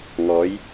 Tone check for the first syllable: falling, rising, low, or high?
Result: rising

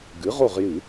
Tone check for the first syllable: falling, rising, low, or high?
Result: rising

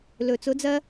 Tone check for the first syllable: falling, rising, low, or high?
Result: low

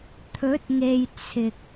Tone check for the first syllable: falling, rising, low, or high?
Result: rising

